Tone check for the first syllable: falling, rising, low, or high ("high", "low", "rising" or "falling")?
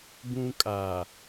high